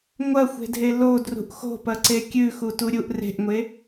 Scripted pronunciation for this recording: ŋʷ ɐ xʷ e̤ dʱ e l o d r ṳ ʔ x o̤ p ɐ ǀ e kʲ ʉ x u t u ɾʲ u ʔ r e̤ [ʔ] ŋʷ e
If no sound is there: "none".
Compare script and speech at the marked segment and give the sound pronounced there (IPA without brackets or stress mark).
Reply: ʔ